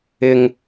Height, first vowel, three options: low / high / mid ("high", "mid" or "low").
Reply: high